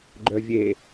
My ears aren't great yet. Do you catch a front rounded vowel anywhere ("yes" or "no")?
yes